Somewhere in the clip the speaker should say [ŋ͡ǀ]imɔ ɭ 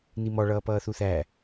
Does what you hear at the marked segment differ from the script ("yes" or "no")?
yes